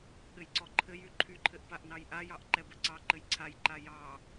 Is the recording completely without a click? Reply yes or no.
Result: no